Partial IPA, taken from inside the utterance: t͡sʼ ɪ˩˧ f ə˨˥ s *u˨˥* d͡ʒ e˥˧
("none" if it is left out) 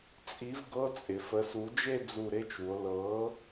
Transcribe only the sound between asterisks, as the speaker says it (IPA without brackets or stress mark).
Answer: u˨˥